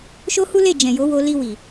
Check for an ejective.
absent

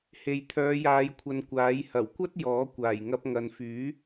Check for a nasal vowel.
absent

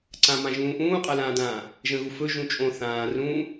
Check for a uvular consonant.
present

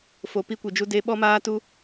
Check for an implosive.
present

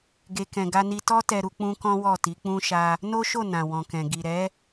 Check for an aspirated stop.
absent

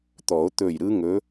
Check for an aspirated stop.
absent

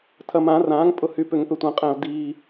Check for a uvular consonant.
present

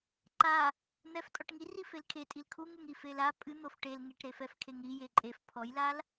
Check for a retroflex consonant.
present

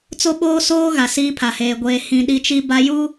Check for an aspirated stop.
present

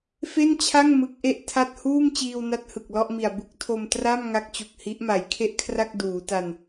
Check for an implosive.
absent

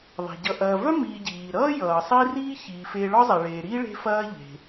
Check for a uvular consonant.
absent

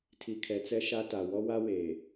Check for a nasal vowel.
absent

